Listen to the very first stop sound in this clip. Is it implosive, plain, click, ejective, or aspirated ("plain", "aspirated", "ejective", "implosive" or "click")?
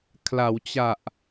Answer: aspirated